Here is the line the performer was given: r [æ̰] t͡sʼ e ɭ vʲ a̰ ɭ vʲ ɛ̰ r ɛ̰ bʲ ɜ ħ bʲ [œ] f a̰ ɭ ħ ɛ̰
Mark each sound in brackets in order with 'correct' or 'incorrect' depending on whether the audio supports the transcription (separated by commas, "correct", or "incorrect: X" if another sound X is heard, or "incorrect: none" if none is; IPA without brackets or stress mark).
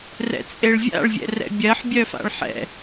incorrect: ɛ̰, correct